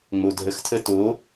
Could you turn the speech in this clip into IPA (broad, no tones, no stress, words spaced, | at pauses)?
ŋ͡modʱəxtʰə to